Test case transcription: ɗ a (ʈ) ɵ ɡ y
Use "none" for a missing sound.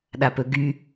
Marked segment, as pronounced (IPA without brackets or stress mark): p